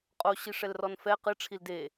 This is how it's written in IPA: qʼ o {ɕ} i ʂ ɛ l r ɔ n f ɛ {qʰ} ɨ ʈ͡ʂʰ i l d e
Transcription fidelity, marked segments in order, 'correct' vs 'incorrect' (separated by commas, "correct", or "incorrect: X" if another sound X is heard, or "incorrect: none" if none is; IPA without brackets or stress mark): correct, incorrect: q